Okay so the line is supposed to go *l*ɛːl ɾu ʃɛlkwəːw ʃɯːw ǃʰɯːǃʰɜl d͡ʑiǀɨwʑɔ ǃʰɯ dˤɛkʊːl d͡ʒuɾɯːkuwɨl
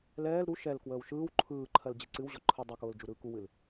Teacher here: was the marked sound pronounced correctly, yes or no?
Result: yes